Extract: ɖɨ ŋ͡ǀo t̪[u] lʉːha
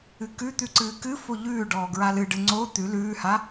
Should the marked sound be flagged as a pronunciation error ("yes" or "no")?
yes